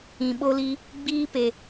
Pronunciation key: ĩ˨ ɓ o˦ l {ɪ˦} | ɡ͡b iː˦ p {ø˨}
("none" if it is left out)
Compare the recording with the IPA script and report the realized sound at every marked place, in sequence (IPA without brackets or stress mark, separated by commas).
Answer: i˦, e˨